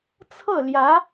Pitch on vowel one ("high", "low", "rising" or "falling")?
falling